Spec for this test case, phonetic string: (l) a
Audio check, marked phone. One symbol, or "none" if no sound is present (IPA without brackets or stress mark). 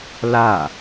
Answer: l